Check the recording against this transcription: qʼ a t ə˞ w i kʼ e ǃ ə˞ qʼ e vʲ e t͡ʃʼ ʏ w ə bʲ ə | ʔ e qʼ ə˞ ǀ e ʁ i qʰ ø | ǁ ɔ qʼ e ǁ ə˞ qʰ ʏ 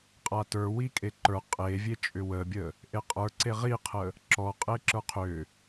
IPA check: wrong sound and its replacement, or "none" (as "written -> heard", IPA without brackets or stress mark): ø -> ə